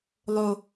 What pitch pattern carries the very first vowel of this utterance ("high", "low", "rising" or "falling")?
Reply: low